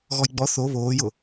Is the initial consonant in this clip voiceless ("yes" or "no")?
no